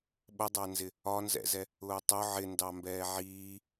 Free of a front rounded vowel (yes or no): yes